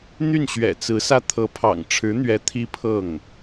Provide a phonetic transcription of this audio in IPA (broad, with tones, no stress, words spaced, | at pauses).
n̪y˥˩nɕɥɛ̰˨˩t͡sɹ̩˧˥sä˥˩ t̪ʰɤ˧˥pʰɑ̰˨˩ŋ ʈ͡ʂʰɻ̩˧˥n̪ɥɛ˧˥ t̪ʰi˥pʰɤ˥˩ŋ